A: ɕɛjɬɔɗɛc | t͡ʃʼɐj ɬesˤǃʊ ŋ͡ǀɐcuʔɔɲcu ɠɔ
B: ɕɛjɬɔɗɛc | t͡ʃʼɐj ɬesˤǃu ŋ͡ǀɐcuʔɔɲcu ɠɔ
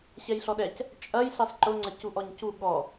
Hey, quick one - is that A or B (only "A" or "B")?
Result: A